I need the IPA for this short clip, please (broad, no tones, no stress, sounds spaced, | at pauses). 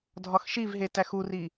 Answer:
dʱ ɒ x ʃ i v ɦ e t æ x u r i